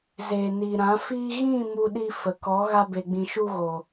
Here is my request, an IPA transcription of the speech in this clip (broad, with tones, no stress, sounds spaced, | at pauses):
z eː˨ n iː˨ ɾ ã˨˦ f iː˦ ɣ ĩ˦˨ m u˧ ɗ i˧ f ə˨ k ɔ˨˦ ɣ a˧ b e˨ ɡ͡b ĩ˨ ʃ u˧ ɣ oː˨